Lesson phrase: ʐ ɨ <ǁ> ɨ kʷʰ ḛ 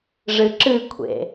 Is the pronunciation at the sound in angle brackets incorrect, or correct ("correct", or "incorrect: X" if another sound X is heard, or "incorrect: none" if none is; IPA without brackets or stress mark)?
correct